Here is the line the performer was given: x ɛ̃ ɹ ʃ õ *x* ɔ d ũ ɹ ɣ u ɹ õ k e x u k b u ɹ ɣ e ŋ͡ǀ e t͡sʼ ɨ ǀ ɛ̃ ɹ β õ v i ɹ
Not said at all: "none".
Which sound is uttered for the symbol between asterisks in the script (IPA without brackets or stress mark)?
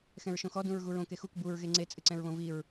x